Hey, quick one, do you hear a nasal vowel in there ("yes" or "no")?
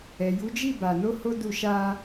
no